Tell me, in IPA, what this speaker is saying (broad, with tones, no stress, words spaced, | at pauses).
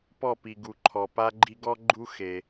pɔ˦˨pi˨ ɡu˨ǃʰɔ˨pa˦ɡ͡ǃi˦ ɡɔ˦ɡ͡ǃu˦ xe˦